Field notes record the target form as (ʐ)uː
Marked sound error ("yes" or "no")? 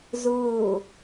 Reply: yes